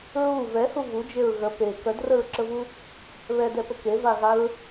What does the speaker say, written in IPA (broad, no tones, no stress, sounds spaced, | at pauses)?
ɹ u v ɛ h u v u d͡ʒ e ɹ ɣ ə p e k œ d r ə ɹ ǁ ə v u | β ɛ d ɛ p ə k e v a ɣ a ɹ